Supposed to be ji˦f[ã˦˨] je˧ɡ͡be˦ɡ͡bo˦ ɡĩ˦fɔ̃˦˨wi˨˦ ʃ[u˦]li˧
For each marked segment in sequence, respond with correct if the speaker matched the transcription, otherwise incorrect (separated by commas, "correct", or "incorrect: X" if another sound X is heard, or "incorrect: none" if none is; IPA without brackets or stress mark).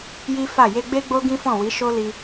incorrect: a˦˨, incorrect: o˦